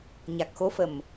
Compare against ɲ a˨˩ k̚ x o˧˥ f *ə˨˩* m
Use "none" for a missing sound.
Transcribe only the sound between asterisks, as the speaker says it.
ə˨˩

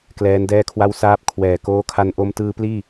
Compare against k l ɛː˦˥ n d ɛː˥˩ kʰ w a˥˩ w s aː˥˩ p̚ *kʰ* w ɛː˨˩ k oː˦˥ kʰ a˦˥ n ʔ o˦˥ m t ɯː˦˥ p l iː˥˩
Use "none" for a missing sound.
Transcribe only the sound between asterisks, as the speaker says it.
kʰ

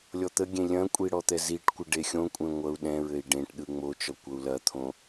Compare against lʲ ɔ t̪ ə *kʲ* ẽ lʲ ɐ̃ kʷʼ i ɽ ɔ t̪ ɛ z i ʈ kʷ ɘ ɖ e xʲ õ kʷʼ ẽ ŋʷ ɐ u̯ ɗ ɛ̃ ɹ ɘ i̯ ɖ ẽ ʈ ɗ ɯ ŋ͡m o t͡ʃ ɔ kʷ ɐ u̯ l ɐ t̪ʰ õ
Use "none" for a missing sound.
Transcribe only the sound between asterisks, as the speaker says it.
ɡʲ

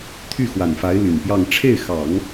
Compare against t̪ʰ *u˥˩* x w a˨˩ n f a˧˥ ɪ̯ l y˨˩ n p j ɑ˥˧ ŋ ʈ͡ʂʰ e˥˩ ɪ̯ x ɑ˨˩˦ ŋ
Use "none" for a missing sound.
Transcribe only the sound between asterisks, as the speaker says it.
y˥˩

